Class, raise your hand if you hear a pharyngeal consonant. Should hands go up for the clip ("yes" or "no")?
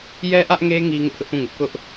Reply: no